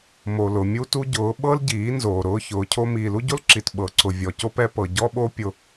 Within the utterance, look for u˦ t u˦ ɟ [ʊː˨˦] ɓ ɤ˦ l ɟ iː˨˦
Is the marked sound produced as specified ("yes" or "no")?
yes